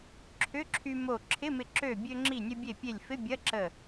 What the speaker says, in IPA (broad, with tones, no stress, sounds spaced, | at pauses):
ǁʰ ʏ˧˥˧ ǁʰ y˧ m o˧˩ ǁʰ ɪ˧˥˧ m ɪ˧˩ ǁ ø˧˩ bʲ ø˧ ŋ͡ǁ i˧˩ nʲ ə˧ bʲ e˧˩ pʲ e˧˩ lʲ f ɪ˧˥˧ bʲ ɐ˧˥˧ ǁ ə˧˩